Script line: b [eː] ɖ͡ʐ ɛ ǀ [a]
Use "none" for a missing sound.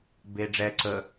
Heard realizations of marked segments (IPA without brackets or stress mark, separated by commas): eː, ə